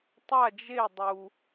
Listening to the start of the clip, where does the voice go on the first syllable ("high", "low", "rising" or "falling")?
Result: falling